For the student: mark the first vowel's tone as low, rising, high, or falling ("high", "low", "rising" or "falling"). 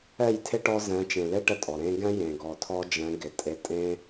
falling